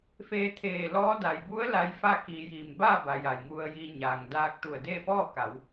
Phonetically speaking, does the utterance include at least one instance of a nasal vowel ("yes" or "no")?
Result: no